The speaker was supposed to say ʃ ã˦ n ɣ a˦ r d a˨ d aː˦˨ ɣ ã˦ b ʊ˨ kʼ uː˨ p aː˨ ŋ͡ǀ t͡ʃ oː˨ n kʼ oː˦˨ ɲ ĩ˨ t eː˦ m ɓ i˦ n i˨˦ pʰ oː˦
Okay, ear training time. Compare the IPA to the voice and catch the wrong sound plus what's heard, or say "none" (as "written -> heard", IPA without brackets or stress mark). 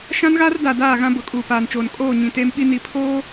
ŋ͡ǀ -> n